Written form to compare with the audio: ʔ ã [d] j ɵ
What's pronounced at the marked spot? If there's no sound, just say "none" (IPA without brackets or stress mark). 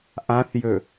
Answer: θ